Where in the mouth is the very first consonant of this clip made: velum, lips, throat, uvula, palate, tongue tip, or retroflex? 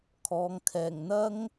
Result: velum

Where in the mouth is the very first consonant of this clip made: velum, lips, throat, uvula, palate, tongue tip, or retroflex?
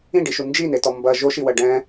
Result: retroflex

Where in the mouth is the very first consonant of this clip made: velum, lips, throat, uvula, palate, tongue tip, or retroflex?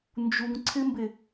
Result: tongue tip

